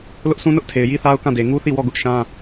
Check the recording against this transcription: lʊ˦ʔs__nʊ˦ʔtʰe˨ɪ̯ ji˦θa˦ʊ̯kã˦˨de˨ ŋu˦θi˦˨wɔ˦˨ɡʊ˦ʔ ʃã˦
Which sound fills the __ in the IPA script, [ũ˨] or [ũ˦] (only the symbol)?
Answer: ũ˦